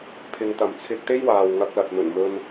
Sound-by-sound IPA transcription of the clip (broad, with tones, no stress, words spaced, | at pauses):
pʰɪ˨ŋt̪ɐ˨˩mt͡sʰɪ˧k̚t̪e˥j waː˨wŋɐ˧k̚lɐ˨t̚mɵ˨˩n mɵ˧n